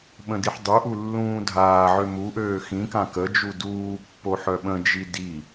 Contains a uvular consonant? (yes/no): no